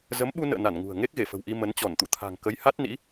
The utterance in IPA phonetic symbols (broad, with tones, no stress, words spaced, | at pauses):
zə˨˦mɓu˧nə̰ː˧˨ na˧˩n ŋṳ˨˩ə̯ ŋe˦˥k̚ɣe˧˩fə̤˨˩wʔi˧ mə˨˦nt͡ɕɔ˧˩nt̪ṵ˧˨t̪ʰa̤˨˩ŋ kə˨˦jha˦˥t̚ nḭ˧˥